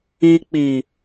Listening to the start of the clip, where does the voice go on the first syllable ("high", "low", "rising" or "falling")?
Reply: low